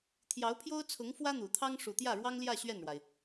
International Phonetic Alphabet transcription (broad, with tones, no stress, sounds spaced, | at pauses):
t̪ʰ j ɑ˧˥ ʊ̯ pʰ j o˥ ʊ̯ t͡sʰ ʊ˧˥ ŋ f w ä˥ n̪ u˨˩ t̪ʰ ɑ˥ ŋ ʂ u˨˩ t̪ j ä˥˩ ɻ w ɑ˥ ŋ l j ä˥˧ ɕ ɥ ɛ˥˩ n ɻ w a˩ ɪ̯